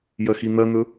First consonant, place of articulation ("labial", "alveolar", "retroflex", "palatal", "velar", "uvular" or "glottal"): palatal